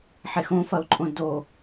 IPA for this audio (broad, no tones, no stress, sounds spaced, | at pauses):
ħ e x õ f ɐ ʊ̯ ǃʼ õ d o